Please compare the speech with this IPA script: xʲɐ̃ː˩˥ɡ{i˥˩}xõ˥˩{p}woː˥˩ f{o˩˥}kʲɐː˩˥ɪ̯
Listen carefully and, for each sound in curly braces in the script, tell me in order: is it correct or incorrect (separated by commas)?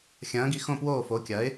incorrect, correct, correct